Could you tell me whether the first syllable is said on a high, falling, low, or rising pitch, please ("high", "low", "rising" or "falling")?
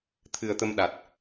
low